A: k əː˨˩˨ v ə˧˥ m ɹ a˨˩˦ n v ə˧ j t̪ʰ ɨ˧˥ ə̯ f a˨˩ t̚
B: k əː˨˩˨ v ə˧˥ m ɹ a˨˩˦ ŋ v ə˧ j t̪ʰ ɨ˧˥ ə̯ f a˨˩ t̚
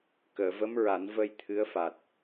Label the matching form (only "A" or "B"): A